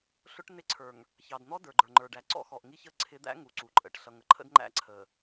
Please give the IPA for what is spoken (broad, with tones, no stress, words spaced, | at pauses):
ɬʊ˦ʈnɪ˦ǀʰə˞˨ŋ | çɑ˨dn̪ɔ˦ də˞˨ɡ͡ǃə˞˨ŋ͡ǃə˞˨ɖæ˨ ǀɔ̰˦xɔ˨ʔŋi˦çə˦ ǀʰɪ˨˦d̪æ̰˦ ŋu˨ǀu˨ ǃʼə̰˨ʈɬʌ˨ŋə˨ ǃʰə̰˦dŋ͡ǃæ̰˦ ǀʰə˨